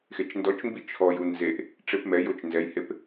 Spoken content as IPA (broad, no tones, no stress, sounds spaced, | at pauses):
x e t͡ʃ n d ɔ t͡ʃ m b i t͡ʃʰ ɔ j u n z e ʔ | ʈ͡ʂ e p m ɛ j o t͡ʃ n z ɛ j h e p